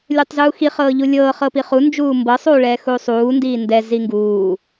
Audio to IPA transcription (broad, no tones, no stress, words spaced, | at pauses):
lʲutˤzuːxi χɤːʎulʲɤː χɤpiχu nd͡ʒuːmbɤ sˤuːɭɛːxuːsˤuː ndiːndɛ ziŋɡuː